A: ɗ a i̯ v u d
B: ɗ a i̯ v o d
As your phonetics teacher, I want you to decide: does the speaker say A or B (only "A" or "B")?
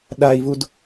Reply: A